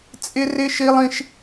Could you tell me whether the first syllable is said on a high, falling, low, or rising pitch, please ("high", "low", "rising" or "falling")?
high